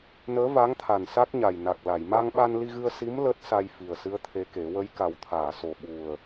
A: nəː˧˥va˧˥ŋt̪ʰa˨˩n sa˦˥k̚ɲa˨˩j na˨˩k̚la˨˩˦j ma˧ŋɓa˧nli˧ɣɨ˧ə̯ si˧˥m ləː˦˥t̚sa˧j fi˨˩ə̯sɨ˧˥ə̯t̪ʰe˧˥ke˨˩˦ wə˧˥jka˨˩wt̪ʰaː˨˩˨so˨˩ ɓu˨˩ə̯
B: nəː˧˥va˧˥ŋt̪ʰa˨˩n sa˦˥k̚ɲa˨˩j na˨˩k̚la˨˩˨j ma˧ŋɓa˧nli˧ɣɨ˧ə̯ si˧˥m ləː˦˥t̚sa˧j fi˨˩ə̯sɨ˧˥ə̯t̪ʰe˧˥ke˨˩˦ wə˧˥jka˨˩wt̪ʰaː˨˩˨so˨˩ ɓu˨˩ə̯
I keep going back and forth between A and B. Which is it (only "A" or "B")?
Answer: B